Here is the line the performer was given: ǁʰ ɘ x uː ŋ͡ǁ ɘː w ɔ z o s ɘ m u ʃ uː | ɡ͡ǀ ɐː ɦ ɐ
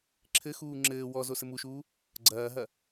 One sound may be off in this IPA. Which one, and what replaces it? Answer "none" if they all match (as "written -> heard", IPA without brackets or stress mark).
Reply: none